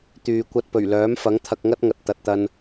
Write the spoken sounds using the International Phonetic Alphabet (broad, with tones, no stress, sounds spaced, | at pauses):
t̪ yː˨ kʷ ɐ˧ t̚ p ɵ˨˩ ɥ l œː˨˥ m f ɐ˨˥ ŋ t̪ʰ ɐ˧ k̚ ŋ ɐ˥ t̚ ŋ ɐ˨ t̚ t̪ ɐ˨ t̚ t̪ ɐ˧ n